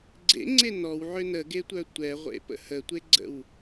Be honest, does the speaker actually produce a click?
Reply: yes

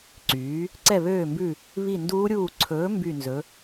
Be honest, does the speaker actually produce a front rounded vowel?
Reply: yes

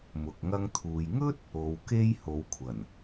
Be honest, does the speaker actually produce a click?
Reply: no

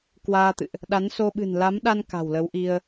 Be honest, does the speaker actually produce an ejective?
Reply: no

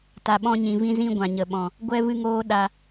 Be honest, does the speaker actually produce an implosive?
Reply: yes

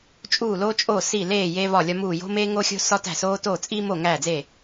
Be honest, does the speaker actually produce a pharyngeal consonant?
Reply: no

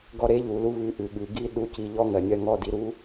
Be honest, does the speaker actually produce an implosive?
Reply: yes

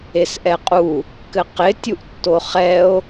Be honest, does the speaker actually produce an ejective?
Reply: yes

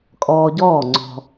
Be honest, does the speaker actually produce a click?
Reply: yes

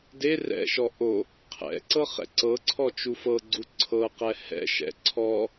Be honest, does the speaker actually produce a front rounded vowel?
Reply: no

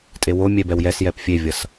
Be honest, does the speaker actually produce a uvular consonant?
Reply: no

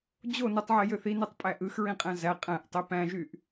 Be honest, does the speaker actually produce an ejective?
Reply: yes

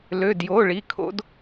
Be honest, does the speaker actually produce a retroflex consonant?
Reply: yes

